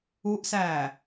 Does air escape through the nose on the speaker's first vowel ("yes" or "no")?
no